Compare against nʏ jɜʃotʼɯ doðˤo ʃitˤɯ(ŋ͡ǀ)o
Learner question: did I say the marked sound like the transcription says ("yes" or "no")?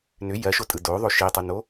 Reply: no